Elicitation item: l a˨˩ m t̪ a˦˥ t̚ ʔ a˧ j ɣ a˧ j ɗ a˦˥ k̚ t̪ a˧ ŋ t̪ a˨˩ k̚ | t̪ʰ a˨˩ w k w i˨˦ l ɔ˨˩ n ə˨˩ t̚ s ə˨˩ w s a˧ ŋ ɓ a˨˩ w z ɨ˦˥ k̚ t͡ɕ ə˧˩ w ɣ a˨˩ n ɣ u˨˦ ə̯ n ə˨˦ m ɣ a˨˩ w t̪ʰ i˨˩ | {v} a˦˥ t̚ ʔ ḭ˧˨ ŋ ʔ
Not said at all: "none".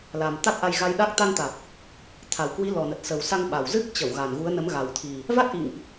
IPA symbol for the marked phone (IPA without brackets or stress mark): v